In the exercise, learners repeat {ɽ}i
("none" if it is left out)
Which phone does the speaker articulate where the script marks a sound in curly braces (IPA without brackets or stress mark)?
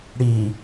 ɽ